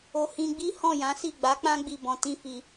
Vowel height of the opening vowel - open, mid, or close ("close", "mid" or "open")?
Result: mid